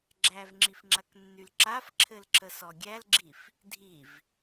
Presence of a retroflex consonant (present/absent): absent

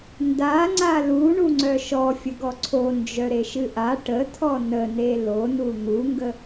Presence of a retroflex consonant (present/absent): present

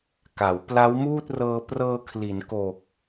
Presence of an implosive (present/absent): absent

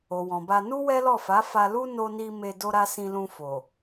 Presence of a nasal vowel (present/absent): present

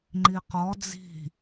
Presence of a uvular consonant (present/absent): present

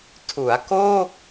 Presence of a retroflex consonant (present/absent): absent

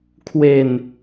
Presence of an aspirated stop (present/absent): present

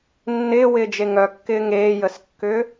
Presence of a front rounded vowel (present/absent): present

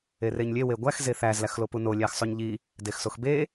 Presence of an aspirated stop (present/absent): absent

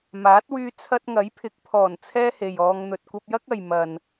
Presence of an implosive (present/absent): absent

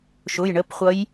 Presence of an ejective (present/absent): absent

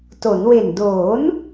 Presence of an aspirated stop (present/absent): absent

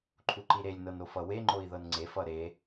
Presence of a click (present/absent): present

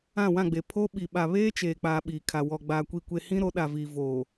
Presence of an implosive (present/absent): present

